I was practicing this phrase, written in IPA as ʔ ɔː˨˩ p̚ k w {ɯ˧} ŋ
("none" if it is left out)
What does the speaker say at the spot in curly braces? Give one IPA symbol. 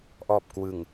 ɯ˨˩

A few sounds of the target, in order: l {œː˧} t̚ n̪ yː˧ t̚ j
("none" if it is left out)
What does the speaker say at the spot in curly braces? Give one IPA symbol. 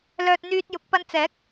œː˧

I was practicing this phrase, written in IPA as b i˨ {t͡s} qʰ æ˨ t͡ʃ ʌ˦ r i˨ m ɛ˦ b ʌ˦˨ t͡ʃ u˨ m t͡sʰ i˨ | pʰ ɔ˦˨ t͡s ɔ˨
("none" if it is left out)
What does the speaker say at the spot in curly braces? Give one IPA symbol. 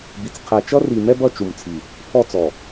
t͡s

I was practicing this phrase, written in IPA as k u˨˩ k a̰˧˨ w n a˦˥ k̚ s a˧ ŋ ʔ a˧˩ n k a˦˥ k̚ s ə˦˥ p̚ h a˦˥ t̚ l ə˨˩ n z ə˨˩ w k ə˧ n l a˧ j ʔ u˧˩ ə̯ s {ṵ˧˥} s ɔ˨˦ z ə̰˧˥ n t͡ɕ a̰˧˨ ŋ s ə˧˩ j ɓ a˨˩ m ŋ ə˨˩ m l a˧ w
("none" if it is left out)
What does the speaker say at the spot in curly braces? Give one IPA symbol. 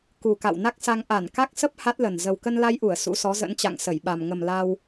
ṵ˧˥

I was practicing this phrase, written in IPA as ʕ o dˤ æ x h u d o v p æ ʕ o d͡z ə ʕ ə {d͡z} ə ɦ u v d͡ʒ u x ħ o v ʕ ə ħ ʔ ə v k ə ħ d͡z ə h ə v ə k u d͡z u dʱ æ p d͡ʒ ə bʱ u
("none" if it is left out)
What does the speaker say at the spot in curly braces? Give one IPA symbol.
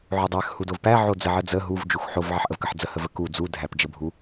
d͡z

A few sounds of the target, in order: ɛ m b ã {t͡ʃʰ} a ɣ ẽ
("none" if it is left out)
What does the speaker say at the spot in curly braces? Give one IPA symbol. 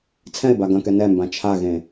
t͡ʃʰ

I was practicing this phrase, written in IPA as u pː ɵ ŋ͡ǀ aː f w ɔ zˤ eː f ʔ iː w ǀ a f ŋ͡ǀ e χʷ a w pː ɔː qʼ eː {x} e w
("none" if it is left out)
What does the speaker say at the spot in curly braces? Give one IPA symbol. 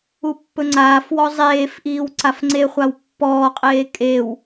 kʼ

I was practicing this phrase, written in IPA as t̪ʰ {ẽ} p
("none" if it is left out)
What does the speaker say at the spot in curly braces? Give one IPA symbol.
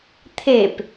e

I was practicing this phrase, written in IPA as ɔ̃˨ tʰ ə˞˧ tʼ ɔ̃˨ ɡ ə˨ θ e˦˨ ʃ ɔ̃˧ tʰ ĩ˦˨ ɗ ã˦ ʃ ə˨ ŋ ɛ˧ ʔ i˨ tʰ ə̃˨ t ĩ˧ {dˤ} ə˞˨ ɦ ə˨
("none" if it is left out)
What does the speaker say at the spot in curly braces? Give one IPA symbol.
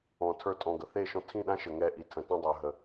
dˤ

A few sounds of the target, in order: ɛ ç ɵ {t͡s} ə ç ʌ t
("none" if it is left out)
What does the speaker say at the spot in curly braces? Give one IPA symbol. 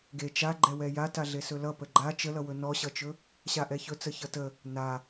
t͡s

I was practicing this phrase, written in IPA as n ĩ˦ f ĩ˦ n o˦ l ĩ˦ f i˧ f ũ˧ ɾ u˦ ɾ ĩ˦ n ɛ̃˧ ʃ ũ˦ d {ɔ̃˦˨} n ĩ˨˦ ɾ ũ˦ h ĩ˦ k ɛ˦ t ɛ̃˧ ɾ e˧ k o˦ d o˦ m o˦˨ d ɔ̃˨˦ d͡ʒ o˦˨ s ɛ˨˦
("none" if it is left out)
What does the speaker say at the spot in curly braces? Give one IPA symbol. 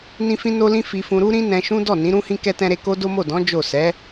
ɔ˦˨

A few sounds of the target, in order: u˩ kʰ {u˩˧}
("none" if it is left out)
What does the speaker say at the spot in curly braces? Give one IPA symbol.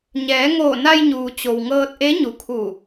u˧˩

